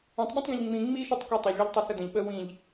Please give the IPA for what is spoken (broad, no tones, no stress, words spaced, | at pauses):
œ̃tˤɓẽtˤɡẽʎ ŋ͡mĩ ŋ͡miʃitˤke tˤœʎɭɤʎ tˤɤsədə̃ʎ ɓə wĩʎ